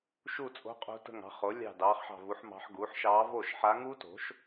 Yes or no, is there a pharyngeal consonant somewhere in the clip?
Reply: yes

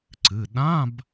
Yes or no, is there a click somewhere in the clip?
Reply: yes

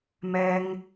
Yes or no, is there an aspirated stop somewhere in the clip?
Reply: no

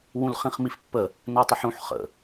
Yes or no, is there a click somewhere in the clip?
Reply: no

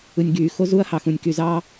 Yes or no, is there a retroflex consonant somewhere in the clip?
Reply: no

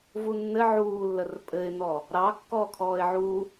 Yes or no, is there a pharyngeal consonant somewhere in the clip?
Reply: yes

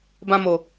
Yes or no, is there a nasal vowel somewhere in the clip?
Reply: yes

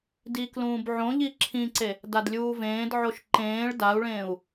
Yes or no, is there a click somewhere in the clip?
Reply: yes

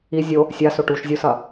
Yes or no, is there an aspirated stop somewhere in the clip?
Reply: no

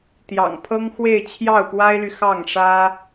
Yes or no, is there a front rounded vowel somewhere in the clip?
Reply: yes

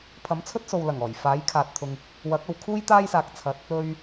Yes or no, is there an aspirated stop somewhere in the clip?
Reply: yes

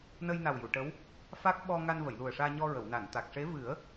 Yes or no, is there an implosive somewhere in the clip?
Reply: yes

